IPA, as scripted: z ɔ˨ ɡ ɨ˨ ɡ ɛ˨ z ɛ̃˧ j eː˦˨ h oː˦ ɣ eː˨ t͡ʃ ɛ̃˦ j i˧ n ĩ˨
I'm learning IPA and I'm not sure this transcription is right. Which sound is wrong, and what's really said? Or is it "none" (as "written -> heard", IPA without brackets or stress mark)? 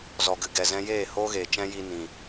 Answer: none